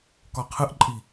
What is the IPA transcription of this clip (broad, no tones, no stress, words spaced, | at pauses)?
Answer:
kɒqʰɨʔǃʼi